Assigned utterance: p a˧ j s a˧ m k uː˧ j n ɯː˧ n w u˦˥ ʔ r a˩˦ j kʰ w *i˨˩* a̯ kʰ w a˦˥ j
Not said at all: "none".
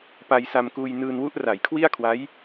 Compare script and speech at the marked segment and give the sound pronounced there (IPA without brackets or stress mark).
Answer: i˥˩